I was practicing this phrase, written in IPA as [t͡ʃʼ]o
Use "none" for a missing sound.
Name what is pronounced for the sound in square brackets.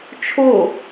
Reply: t͡ʃʰ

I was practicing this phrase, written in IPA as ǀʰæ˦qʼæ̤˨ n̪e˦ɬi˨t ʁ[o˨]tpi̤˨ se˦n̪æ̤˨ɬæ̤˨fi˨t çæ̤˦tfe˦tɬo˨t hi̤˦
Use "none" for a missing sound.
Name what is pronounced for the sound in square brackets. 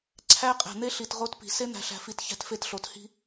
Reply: o˦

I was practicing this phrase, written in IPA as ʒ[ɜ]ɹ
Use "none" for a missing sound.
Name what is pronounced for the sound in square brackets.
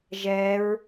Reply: ɛ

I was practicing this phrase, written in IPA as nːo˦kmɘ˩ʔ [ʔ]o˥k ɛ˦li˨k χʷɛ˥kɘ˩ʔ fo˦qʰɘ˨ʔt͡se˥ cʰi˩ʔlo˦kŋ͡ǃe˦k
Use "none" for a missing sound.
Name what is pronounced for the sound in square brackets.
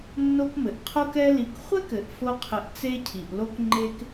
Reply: qʰ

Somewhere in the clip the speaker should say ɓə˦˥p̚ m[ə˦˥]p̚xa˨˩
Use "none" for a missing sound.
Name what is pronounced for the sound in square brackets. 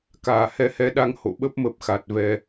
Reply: ə˦˥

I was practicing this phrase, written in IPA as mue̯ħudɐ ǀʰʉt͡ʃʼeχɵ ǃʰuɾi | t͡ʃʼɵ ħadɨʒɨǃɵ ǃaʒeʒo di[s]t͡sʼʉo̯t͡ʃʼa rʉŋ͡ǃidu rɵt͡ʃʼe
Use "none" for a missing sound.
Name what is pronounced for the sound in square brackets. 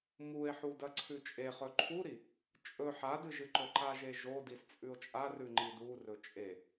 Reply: s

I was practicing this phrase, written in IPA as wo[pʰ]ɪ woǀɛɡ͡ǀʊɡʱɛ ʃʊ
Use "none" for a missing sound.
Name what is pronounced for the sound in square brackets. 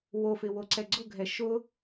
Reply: f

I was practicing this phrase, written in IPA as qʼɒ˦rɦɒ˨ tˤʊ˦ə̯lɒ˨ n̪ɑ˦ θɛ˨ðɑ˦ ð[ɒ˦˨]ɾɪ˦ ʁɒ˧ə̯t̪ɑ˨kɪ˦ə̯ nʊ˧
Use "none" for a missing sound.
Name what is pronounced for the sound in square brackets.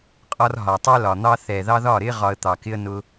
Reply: ɒ˦˨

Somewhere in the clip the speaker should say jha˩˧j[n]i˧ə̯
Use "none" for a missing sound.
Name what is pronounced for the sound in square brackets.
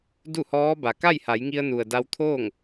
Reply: ŋ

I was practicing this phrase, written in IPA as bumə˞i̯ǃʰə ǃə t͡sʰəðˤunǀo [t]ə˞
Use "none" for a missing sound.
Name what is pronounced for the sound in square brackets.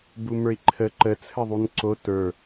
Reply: t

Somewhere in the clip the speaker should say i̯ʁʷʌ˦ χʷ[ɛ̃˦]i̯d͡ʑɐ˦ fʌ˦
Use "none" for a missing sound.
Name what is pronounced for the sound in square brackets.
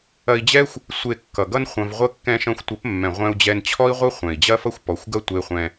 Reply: ɛ̃˨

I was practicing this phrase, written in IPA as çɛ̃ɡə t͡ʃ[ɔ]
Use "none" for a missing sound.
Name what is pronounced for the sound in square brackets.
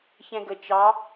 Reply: ɑ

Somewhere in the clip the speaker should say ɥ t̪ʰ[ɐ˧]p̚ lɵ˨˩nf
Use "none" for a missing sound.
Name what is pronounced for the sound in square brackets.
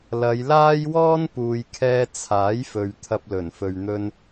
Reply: ɐ˧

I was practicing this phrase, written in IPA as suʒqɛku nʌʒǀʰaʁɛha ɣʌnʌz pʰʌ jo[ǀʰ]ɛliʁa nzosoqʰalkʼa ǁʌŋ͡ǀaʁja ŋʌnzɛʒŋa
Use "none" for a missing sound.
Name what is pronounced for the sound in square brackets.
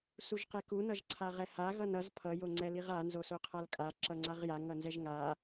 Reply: ŋ͡ǀ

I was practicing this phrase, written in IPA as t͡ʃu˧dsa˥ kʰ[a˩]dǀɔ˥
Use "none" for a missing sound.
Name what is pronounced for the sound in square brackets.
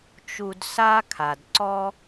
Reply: a˩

